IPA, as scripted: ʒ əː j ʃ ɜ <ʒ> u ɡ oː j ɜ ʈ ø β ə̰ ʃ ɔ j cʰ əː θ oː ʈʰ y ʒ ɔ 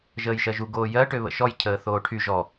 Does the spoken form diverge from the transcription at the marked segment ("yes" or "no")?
no